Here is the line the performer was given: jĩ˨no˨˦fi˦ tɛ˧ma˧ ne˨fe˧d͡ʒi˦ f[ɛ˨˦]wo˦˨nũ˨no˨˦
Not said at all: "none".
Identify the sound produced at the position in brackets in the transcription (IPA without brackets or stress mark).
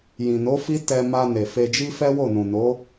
ɛ˦